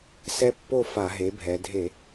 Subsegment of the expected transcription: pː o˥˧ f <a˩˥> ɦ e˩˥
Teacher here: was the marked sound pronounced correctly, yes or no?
no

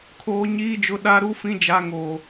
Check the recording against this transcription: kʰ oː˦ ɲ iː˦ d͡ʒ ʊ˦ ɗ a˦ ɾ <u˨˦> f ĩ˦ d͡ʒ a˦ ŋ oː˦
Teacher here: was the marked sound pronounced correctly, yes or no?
no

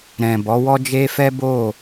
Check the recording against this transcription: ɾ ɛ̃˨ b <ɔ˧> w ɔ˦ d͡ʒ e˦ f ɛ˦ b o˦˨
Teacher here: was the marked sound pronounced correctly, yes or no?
no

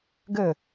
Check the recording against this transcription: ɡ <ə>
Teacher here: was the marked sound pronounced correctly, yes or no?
yes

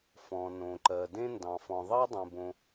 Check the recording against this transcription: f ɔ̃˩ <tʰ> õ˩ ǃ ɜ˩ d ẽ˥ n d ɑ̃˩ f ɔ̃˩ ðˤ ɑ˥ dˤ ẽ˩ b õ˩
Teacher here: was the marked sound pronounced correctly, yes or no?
no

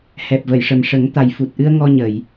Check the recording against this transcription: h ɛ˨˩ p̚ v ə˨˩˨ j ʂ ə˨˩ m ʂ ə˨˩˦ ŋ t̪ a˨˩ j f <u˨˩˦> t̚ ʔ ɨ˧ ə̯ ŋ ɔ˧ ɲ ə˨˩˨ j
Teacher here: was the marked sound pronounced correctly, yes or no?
no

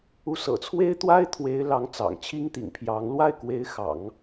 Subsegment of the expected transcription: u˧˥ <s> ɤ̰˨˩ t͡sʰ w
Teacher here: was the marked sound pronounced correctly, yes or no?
yes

